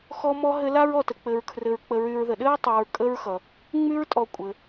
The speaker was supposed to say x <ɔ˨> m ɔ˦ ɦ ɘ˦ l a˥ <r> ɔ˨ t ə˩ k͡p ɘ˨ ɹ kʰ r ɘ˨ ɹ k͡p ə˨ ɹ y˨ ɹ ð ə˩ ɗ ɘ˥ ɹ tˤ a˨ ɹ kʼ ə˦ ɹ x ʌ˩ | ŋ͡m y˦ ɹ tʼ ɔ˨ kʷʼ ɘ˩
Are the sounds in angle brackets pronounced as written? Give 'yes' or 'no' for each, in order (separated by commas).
no, no